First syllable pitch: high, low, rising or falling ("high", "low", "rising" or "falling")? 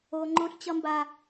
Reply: high